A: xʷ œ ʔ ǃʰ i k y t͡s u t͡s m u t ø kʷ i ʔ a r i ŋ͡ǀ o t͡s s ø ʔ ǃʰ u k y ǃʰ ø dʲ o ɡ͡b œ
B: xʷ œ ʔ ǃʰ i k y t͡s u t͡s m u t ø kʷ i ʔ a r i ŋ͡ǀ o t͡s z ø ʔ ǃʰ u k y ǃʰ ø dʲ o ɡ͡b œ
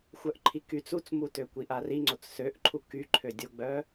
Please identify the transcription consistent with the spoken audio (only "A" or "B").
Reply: A